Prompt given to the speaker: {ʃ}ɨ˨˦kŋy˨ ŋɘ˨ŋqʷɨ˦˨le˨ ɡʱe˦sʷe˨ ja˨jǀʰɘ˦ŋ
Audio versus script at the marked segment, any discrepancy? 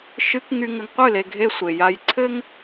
no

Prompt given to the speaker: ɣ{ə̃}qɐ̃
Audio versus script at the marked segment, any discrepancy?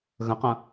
no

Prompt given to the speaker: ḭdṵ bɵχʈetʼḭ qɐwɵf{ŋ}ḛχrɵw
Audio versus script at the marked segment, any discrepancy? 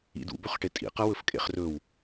yes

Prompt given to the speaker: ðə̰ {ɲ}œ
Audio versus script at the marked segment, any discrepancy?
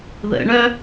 yes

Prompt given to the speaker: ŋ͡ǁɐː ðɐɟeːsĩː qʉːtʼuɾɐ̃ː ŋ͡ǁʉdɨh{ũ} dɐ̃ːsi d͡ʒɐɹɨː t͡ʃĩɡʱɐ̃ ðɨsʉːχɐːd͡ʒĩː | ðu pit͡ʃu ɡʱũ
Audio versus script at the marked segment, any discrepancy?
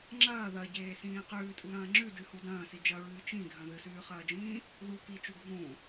yes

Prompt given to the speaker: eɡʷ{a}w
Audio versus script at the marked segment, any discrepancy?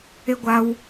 no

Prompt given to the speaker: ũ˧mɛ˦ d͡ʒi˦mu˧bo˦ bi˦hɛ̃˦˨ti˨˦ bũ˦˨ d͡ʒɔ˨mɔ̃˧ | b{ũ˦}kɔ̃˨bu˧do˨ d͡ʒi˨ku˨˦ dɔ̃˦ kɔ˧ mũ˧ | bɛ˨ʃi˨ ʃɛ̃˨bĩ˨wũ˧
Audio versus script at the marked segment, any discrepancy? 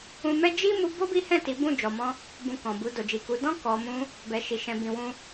yes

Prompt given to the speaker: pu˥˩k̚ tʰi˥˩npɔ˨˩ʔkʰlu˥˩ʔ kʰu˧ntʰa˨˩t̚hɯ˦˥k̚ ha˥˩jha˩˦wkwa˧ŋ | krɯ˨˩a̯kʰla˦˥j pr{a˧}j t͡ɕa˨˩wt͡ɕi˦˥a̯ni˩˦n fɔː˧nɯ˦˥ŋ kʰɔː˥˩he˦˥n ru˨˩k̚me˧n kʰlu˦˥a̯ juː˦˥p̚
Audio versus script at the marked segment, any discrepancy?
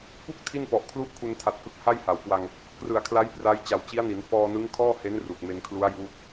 yes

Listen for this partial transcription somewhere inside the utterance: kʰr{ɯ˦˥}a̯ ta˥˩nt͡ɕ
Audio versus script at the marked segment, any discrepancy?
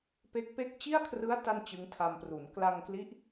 no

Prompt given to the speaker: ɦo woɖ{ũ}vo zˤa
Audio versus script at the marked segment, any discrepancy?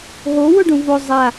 no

